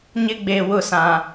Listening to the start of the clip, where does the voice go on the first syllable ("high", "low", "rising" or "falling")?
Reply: high